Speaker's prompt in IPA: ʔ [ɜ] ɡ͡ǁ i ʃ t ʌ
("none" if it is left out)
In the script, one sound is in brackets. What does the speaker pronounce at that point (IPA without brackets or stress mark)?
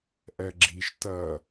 ɜ